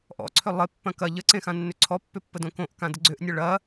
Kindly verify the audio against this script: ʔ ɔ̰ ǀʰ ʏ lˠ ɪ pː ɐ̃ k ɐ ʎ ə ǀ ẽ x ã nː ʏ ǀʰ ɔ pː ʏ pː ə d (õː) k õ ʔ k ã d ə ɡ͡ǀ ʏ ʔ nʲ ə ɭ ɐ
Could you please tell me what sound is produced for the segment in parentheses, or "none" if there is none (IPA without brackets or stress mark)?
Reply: õ